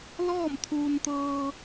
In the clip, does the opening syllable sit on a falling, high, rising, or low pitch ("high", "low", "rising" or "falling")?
falling